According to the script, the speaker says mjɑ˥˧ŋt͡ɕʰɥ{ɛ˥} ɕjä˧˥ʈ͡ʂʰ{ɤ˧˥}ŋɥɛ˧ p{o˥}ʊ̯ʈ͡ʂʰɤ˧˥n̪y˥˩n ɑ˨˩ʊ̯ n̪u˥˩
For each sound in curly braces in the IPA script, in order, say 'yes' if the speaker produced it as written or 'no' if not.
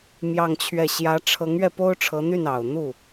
no, yes, yes

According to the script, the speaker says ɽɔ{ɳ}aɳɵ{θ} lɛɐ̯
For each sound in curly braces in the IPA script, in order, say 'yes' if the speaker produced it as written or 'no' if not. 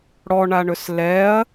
yes, no

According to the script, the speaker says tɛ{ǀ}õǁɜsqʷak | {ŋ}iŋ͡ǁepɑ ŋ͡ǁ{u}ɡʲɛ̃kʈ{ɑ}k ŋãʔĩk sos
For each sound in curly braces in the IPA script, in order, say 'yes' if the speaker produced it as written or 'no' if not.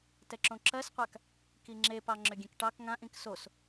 no, no, no, yes

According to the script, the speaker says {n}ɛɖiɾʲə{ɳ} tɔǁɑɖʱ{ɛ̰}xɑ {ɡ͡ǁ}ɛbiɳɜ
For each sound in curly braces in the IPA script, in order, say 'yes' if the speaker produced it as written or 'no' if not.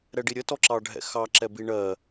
no, no, yes, no

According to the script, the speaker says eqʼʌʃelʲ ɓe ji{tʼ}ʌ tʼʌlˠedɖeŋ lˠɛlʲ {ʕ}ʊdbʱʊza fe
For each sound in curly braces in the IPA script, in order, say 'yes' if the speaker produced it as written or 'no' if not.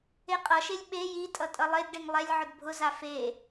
yes, yes

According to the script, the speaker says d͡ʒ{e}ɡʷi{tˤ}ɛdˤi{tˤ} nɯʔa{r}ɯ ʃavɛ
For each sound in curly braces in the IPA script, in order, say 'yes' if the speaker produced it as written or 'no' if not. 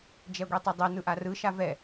no, yes, no, yes

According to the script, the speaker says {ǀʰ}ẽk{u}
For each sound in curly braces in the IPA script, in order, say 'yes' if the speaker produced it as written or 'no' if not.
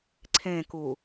yes, yes

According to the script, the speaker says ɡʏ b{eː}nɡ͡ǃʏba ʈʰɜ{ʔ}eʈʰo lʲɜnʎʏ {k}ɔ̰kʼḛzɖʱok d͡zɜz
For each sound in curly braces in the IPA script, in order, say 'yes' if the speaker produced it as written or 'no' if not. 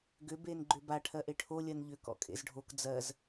yes, yes, yes

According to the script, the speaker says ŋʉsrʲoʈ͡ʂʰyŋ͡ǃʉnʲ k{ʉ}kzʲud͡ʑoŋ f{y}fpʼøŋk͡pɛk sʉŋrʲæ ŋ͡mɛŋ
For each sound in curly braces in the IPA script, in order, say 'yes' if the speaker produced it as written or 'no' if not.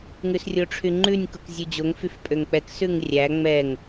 no, yes

